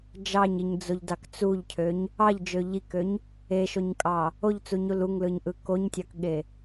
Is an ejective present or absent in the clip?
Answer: present